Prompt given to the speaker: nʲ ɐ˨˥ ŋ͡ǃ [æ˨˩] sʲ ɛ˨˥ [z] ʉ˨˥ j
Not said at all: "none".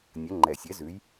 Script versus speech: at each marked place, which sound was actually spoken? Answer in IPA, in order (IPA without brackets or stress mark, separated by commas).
ɛ˨˩, z